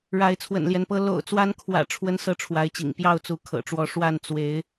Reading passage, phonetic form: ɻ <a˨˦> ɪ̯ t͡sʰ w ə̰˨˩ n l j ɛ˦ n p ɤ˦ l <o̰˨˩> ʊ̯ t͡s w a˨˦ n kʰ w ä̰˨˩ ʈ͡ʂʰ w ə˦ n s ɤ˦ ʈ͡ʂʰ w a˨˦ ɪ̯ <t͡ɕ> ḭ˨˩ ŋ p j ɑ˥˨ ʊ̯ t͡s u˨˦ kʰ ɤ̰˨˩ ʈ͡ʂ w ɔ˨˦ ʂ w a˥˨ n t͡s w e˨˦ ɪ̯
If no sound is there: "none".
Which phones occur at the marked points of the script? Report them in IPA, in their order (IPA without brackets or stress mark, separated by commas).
a˨˦, o̰˨˩, t͡ɕ